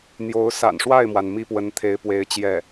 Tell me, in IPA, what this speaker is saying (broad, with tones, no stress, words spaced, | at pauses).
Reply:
n̪jo˧˥ʊ̯ sa̰˨˩nʂwa˥˩ɪ̯mwa˩n mi˥˩pwə˧˥nt̪ʰe˧˥ɪ̯pwe˧˥ɪ̯ t͡ɕjɛ˥˩